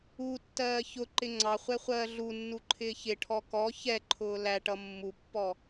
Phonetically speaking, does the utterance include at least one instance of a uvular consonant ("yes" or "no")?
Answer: yes